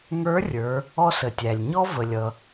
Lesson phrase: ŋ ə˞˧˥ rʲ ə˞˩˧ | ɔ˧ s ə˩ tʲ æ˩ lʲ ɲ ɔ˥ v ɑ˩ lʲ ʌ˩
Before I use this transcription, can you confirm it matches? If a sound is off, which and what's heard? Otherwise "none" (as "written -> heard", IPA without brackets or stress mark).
ɑ˩ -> ə˩